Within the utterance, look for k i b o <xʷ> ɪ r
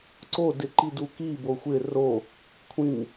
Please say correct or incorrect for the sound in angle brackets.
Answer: correct